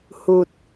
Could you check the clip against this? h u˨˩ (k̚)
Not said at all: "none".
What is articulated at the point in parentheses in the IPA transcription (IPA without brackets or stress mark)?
t̚